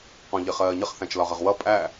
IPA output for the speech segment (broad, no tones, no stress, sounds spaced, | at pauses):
q ɔ̃ ʎ ɪ χ ɜː ɲ ə χ θ æ̃ t͡ʃ l ɒ ʁ ə ʁ w ʌ pʼ æ